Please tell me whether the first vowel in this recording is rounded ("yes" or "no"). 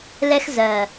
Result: no